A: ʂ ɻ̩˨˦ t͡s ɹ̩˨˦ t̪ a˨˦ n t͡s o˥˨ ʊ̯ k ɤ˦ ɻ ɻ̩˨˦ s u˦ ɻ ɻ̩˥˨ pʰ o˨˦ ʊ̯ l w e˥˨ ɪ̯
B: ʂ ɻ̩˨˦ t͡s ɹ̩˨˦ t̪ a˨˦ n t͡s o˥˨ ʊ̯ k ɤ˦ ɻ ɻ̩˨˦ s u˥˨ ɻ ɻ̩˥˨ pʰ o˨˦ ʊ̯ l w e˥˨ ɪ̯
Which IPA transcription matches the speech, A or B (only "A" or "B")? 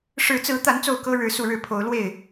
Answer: B